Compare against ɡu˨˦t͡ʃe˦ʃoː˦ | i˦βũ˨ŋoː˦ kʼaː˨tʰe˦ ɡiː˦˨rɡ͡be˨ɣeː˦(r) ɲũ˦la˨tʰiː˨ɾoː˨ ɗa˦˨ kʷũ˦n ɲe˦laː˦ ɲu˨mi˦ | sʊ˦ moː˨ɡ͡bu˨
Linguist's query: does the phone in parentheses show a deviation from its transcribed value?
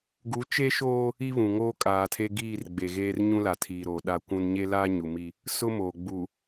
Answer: no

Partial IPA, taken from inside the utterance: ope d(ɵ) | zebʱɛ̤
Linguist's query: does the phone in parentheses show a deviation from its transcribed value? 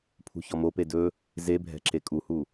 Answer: no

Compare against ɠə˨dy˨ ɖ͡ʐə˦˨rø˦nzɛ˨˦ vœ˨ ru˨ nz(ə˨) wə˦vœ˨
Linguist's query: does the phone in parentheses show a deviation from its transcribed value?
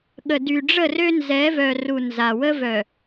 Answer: yes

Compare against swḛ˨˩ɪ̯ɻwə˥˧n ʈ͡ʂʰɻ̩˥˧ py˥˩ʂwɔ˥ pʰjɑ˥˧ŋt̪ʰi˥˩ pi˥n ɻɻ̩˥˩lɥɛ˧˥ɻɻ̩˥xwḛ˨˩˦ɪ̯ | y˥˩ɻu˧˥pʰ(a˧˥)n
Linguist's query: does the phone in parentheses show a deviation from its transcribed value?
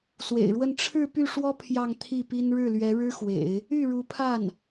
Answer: yes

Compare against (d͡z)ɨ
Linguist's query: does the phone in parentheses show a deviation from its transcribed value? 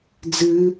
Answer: no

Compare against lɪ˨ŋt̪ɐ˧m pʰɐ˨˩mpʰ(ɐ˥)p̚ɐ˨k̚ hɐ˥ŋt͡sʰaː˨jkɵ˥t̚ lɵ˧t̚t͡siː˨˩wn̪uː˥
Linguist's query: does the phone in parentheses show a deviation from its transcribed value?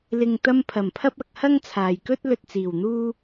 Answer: no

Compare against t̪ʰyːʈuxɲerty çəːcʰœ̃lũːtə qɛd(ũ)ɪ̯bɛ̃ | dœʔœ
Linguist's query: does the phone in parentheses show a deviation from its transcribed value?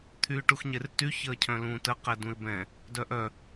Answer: no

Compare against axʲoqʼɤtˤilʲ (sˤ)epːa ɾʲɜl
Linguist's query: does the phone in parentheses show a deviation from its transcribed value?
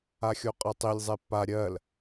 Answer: yes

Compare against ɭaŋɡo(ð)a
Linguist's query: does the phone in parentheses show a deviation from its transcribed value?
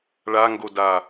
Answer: yes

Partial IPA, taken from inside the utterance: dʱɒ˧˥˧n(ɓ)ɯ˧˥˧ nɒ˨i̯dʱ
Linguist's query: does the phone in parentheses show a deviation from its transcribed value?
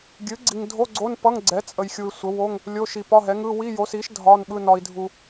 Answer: no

